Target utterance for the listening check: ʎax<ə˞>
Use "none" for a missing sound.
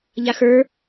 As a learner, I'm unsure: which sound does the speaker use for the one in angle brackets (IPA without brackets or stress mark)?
ə˞